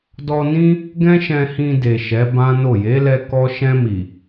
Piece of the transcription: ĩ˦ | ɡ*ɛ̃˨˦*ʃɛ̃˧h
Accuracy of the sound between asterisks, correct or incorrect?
incorrect